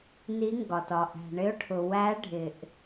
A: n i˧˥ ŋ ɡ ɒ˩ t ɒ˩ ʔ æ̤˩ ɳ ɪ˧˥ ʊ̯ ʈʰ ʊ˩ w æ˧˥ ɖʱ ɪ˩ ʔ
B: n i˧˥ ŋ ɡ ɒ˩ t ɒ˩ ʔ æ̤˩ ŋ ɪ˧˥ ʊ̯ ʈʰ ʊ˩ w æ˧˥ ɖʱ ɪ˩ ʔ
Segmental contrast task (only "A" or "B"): A